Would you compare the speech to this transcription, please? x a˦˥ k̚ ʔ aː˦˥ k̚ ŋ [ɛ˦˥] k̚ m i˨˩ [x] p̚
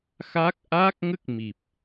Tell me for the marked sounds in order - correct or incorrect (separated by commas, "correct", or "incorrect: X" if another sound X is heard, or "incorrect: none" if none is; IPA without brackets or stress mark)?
incorrect: ə˦˥, incorrect: none